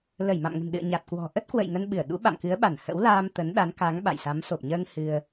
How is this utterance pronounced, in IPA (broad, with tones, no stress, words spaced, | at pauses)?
lə˧˩jma̰˧˨mŋə̤˨˩nɗɨ̰˧˨ə̯ ɲa˨˩t̚kwɔ̤˨˩ ʔə˦˥t̚kwə̰˧˨j ŋə˧nɓɨ˧˩ə̯ɗṵ˧˥ ɓa̰˧˨mkɨ˨˦ə̯ɓa˧˩n hə̰˧˥wlaː˧m t̪ə˨˦n ɗa˨˦nka˨˦ŋ ɓa̰˧˨jsa˨˦m so˨˩p̚ɲəː˧ŋ hɨ˧ə̯